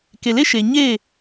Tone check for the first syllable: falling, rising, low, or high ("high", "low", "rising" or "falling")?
low